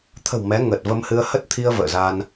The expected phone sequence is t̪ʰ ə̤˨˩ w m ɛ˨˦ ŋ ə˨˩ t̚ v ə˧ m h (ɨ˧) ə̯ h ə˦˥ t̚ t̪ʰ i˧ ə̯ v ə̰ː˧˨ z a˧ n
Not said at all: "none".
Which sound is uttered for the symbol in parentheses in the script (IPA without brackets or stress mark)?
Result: ɨ˧